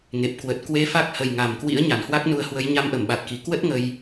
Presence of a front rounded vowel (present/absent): absent